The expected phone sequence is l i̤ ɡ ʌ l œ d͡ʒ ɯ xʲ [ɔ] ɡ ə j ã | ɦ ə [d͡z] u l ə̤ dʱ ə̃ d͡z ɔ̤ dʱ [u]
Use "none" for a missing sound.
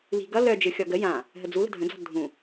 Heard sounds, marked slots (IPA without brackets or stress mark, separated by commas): ɔ, d͡z, ũ